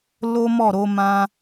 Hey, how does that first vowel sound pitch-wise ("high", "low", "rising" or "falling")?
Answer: high